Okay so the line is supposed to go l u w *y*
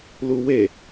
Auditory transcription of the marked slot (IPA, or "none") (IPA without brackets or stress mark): e